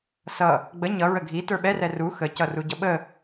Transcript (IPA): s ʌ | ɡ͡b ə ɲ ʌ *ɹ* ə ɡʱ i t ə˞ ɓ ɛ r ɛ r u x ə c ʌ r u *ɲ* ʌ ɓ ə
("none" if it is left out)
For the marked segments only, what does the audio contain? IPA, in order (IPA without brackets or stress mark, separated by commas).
ɹ, ɟ